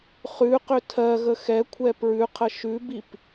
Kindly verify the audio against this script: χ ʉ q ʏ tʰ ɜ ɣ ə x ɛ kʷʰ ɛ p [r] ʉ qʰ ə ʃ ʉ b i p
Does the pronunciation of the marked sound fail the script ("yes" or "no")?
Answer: yes